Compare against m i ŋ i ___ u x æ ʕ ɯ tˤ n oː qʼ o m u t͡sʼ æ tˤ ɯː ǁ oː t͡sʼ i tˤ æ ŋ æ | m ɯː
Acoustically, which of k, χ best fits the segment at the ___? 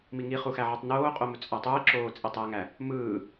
χ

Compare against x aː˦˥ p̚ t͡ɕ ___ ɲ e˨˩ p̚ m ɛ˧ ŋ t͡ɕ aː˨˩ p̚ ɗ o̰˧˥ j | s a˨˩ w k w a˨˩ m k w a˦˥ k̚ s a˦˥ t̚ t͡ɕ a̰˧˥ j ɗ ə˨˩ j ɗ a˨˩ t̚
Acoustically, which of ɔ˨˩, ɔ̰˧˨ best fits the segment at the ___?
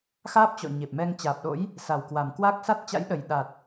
ɔ̰˧˨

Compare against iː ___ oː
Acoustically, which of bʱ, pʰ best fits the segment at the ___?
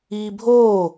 bʱ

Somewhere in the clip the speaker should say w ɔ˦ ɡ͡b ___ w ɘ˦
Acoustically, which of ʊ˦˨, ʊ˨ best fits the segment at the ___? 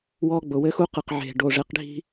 ʊ˨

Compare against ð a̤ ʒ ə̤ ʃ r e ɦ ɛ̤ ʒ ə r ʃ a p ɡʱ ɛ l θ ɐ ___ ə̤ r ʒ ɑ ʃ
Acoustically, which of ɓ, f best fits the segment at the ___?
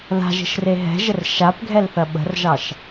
ɓ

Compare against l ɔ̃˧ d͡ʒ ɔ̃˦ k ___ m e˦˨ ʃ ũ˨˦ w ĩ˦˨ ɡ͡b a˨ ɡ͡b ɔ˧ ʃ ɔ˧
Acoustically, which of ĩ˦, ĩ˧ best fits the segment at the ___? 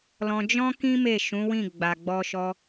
ĩ˦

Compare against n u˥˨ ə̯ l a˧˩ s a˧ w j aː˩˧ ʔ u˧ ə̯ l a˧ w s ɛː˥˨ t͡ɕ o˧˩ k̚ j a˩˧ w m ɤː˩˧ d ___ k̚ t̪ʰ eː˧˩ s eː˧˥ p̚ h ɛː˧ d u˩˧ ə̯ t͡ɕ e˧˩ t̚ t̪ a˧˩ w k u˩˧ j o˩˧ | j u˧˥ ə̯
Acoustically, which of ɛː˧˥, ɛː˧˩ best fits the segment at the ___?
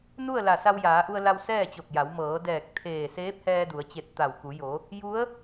ɛː˧˩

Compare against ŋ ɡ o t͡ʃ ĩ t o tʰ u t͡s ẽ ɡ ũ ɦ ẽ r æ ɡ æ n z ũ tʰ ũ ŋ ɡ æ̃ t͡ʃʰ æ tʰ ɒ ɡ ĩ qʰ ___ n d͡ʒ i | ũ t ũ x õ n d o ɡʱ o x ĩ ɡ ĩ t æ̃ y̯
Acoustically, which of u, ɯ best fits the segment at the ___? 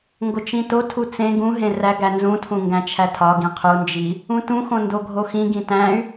u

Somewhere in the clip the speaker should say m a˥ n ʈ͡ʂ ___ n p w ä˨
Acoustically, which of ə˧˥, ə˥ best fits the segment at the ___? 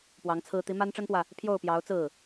ə˥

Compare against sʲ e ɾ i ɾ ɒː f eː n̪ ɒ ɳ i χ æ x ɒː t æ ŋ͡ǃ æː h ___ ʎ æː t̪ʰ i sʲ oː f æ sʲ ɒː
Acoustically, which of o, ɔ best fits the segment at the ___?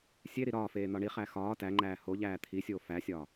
o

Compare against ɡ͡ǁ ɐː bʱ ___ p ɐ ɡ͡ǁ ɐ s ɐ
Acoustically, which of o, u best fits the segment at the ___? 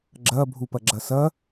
u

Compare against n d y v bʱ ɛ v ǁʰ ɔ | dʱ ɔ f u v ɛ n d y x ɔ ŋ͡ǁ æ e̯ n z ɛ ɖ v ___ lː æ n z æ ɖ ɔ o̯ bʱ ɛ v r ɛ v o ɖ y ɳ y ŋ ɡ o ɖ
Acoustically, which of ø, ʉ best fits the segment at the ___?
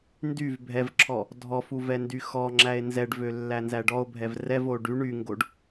ø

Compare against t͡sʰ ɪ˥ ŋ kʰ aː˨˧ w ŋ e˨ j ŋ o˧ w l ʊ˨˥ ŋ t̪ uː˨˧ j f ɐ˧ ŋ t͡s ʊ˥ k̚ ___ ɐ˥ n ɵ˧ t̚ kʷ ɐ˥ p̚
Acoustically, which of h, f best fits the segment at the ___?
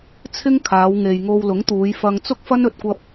f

